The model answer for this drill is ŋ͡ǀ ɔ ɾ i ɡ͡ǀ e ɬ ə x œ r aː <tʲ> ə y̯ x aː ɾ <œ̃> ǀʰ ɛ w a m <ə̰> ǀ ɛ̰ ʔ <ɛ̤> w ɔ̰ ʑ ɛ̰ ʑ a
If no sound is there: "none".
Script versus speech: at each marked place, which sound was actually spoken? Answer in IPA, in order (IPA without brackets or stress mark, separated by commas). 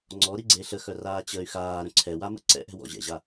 t͡ɕ, œ̃, ə̰, ɛ̤